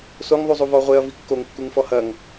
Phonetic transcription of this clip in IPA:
s o ŋ ðˤ u zˤ u v ɔ ʁʷ e ɐ̯ v i kː o ŋ kː u ŋ f ɔ h ɐ ŋ

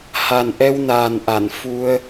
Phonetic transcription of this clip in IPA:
h a˨˩ n ʔ ɛ˧ w n aː˨˩ n ʔ a˧˩ n f u˧ ə̯

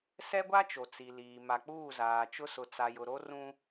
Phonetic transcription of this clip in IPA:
s ɛ˦ ɡʷ a˦ t͡ʃ o˨ t͡s i˨ l iː˨ m a˨ k͡p uː˦˨ z aː˨ t͡ʃ ʊ˦ s ʊ˨ t͡s a˨ j ʊ˨ ɾ o˦ r ũ˦

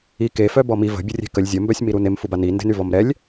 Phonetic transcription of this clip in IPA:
i k e f œ b ɔ m i v ə̤ bʲ ə rʲ e̤ k ə lʲ zʲ ə m b œ sʲ m i ɾ u n e m f u b a n i n d e̤ n y v ɔ m ɾ ɛ lʲ

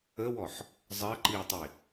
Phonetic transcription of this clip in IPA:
ə w ɔ ħ | zˤ ɜ ǃ iː tˤ i

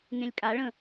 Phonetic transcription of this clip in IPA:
ŋ ẽ lʲ kʼ a ɭ ə̃

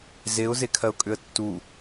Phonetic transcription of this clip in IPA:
z e ʊ̯ z e kʰ ɜ ʊ̯ kʼ ʏ ə̯ tː u

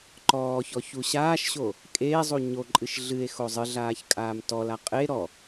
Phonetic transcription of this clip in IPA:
ǃ ɔː ç ɔ ç u ɕ aː ʃ ɕ o | kʼ eː zˤ u ɲ o ǃʼ ɨ ʃ ɮ ɨ e̯ x o zˤ ɨ ɮ aː ç kʼ aː m t ɔ l a qʼ e ɾ ɔ

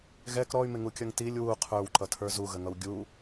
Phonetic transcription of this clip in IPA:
ɣ ɛ k ɾ ɔ y̯ m ɪ ŋ u kʲ ʌ ŋ t i lʲ w u qʰ ə˞ w ǃ ʌ tʰ ə˞ z u ɣ ə ŋ ʌ w ɡʲ u

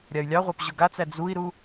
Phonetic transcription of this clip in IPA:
ɾʲ a y̯ lʲ ɑ ʁʷ ɑ p ʑ ʊ ɡ a t͡s æ d͡z u i̯ ɾ u

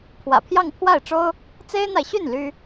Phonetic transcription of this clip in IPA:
pʰ w ä̰˨˩ pʰ j ɑ˥˧ ŋ pʰ w a˥˩ ɪ̯ ʈ͡ʂ o˥ ʊ̯ | t͡s e˥ ɪ̯ n̪ a˨ ɪ̯ ɕ y˥˩ n l y˥

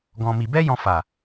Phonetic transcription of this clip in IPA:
ɡ ɔ̃˧ m i˧ b ɛ˦ j ɔ̃˧ f a˨

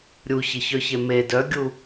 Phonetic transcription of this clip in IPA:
ɾʲ u ç ɪ ç œ ç e m e d œ ɡʲ u

